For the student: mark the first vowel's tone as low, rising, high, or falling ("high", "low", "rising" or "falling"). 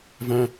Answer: low